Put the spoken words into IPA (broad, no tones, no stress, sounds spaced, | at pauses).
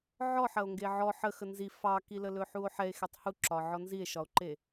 ʕ ɔ ħ ɐ o̯ ŋ ɡ e ʕ ɔ ħ ə x ə n z i f ɑ k i l ə l ɵ ħ u o̯ ħ ɛ e̯ x e tˤ h u ǁ ɒ ʕ ɔ n z i e̯ ʃ ɒ o̯ ǃ e